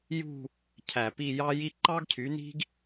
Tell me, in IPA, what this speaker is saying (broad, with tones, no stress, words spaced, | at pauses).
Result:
jṳ˥˧ | cʰæ˧˩pi˥˧jɑ˥ji˥ ǃɑ˥ɡcʰy˨˥ni̤˥ɡ